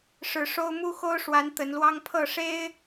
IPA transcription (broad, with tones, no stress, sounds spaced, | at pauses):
ʂ ɻ̩˨˦ ʂ o˦ ʊ̯ m u˦ x o˦ ʊ̯ ʂ w a˨˦ n t̪ ə˨˦ n l w ɑ˦ ŋ pʰ ɤ˥˨ ʂ e˦ ɪ̯